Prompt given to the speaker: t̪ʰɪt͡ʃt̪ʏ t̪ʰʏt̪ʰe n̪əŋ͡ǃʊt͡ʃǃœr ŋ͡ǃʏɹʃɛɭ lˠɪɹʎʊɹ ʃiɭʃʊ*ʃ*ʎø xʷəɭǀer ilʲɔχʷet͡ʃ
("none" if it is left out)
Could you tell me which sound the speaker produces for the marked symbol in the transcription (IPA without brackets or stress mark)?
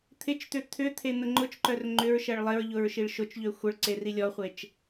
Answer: t͡ʃ